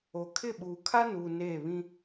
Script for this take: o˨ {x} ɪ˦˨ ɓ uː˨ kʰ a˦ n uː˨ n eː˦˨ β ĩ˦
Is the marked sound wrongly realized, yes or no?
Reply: yes